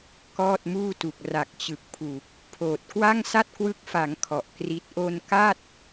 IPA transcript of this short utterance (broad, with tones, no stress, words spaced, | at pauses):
kɔː˥˩t̚muː˥˩tu˨˩k̚ ra˨˩k̚t͡ɕɯ˨˩k̚ pʰu˨˩k̚ | pʰoː˨˩t̚ kwa˥˩ŋsa˥˩t̚kwɯ˦˥k̚fa˩˦ŋ kʰɔ˨˩ʔkri˦˥t̚ ʔo˧n ka˥˩t̚